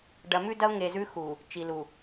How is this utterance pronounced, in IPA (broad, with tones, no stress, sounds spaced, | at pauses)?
ɖ ɐ˨ m ʉ˦ d ɐ˦ ʊ̯ ŋ e˨ z ʉ˦ x u˨ | t͡ʃ i˨ l u˨